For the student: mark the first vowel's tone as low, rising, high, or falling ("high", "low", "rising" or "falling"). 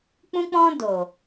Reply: high